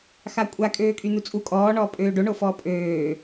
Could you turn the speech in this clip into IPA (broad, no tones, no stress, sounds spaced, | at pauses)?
x a kʷʼ a kʼ øː kʼ y n̪ u t͡sʼ u kʼ ɔː ɳ ɔː pʼ øː ɖ o ɳ o f ɔː pʼ øː